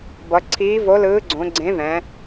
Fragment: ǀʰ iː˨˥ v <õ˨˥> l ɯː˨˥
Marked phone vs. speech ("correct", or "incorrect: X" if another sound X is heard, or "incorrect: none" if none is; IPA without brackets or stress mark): incorrect: o˨˥